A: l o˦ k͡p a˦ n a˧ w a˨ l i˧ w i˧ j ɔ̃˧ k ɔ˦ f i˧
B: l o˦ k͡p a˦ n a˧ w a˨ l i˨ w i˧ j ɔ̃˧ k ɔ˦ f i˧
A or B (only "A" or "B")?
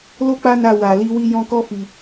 A